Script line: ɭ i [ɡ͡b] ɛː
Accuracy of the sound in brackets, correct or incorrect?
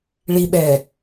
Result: incorrect